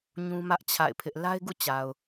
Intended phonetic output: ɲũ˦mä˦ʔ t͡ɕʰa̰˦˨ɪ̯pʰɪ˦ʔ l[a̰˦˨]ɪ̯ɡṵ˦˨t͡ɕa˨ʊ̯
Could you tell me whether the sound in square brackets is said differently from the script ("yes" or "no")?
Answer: yes